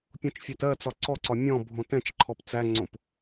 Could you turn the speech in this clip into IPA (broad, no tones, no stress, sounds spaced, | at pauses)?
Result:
pʲ õ t͡ʃ fʲ æ t ɜ t͡s ɒ ǀ ɔ ǀ ɒ mʲ ɔ̃ bʱ õ t ɛ̃ t͡ʃ ǃʰ ɔ p t͡s æ ŋ͡ǀ õ p